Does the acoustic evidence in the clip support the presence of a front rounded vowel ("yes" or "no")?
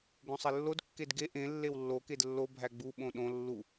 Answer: no